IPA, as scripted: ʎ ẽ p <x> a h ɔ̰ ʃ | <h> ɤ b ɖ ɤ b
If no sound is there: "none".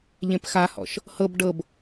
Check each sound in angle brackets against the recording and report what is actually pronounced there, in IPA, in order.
x, h

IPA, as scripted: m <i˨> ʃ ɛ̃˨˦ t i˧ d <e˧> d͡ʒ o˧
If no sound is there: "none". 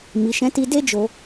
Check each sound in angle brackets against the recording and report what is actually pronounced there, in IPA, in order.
i˨, e˦

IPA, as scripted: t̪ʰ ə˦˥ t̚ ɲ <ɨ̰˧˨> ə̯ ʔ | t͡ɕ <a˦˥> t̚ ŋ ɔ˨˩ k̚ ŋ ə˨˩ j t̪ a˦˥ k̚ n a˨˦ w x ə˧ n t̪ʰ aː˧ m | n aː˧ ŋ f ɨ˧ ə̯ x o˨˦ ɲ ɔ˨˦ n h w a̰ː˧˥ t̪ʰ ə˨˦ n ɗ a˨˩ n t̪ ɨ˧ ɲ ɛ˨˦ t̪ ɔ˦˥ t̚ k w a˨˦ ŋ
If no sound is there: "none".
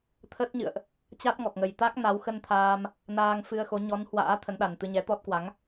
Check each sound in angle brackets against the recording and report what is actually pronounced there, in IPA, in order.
ɨ̰˧˨, a˦˥

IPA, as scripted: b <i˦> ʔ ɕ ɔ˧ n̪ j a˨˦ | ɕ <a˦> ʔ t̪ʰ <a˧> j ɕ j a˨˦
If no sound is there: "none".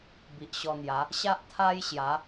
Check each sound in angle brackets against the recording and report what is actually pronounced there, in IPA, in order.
i˨, a˦, a˦

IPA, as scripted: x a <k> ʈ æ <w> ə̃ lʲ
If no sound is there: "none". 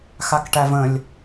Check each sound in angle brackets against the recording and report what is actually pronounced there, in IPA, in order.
k, v

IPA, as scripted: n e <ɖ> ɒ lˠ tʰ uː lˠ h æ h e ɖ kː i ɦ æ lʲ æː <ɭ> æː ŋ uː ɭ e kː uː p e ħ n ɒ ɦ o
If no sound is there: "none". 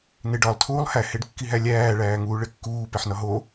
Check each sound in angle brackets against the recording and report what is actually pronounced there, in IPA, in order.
ɖ, ɭ

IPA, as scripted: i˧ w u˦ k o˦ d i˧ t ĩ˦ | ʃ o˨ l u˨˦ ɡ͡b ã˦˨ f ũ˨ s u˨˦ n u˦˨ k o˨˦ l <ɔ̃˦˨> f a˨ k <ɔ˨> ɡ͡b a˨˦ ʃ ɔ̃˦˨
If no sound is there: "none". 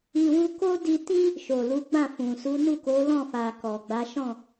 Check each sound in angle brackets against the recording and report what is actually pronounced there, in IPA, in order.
ɔ̃˦˨, ɔ˨

